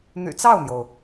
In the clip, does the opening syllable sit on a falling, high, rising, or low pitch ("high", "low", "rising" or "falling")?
low